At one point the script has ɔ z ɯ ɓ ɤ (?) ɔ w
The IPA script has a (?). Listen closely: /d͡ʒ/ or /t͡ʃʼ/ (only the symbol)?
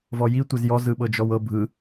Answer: d͡ʒ